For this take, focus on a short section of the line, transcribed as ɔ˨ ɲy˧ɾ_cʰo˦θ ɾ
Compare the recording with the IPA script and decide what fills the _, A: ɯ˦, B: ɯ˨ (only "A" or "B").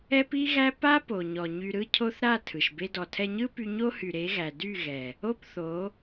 A